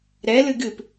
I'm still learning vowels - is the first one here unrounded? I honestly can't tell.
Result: yes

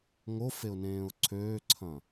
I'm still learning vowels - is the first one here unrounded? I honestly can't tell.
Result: no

